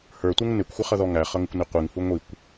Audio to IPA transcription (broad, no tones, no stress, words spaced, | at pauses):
hə˞tʷɛŋ nɪkʷxʷɪχʌðɔ ŋæχʌŋɪkʷni qʷiŋhu ŋʷikʷ